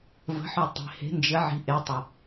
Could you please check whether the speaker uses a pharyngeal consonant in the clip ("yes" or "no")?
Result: yes